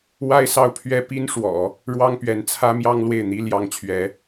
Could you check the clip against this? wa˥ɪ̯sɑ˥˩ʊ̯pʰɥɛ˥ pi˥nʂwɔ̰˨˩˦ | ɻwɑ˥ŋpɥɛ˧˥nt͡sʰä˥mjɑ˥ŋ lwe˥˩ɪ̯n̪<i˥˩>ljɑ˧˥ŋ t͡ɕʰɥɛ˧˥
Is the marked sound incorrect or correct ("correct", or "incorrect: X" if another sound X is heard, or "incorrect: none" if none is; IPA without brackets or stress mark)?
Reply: incorrect: i˥